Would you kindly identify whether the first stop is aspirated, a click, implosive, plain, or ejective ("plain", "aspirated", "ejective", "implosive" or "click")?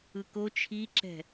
plain